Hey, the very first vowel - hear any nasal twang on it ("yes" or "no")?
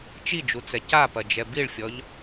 no